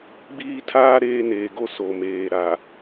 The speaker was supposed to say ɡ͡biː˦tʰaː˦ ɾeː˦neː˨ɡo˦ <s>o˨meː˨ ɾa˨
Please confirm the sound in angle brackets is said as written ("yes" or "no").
yes